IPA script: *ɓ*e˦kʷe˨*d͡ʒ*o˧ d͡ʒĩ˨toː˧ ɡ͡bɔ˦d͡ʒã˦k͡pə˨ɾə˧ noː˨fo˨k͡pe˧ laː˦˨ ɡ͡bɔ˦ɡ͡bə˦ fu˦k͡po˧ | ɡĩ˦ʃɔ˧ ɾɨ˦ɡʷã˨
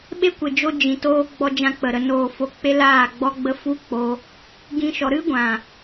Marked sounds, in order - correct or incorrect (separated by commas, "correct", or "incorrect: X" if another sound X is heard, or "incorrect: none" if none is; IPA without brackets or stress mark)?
correct, correct